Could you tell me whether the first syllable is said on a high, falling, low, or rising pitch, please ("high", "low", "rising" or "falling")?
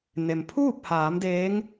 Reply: low